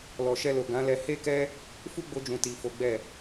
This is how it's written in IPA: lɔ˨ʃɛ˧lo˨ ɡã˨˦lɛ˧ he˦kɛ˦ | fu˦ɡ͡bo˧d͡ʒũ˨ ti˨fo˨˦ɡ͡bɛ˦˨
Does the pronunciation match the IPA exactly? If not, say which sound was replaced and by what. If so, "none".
none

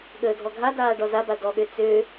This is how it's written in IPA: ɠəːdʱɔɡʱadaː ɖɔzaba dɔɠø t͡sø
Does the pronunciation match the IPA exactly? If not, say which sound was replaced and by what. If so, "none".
none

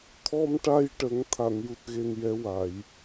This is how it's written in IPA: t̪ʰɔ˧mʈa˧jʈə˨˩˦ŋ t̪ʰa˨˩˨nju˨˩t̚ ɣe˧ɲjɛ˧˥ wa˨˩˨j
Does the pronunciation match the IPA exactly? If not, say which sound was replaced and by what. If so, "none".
ɲ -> n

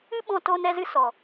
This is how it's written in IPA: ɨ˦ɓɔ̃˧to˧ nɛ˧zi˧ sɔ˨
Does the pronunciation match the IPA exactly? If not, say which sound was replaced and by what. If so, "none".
i˧ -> ɨ˧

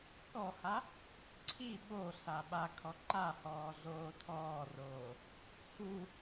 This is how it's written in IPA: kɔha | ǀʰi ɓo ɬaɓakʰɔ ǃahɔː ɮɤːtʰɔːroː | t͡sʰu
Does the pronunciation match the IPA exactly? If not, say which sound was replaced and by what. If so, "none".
ɤː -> oː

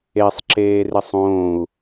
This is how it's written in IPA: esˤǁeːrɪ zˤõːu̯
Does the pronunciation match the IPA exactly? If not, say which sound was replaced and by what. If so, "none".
zˤ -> sˤ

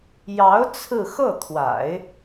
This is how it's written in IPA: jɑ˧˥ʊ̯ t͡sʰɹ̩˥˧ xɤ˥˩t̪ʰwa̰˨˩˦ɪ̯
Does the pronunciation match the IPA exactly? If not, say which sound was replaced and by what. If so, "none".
none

